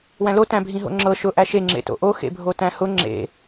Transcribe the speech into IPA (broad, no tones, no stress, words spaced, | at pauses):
wæ̃lo tæ̃bʱĩɦo̰ŋ͡ǁɤ ʃʊ ʔæʃe ŋ͡ǁḛto̰ʔo xḛbʱotæ̃hʊ ŋ͡ǁḛ